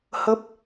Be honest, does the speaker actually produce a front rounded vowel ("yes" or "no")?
no